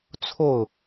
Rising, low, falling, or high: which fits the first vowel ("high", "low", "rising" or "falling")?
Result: falling